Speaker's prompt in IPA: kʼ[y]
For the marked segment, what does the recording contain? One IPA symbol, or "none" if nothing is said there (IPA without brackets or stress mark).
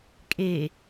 e